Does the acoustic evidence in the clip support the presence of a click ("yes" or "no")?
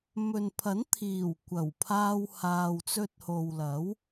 no